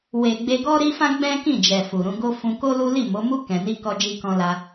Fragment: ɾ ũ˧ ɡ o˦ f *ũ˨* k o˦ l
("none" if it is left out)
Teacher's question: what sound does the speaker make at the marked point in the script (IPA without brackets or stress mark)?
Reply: ũ˧